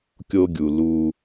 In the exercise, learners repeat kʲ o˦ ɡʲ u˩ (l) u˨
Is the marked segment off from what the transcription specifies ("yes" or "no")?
no